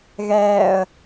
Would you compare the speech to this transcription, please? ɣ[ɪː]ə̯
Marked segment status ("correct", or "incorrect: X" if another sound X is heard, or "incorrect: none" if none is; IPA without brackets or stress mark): incorrect: ɛː